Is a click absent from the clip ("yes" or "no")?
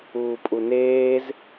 yes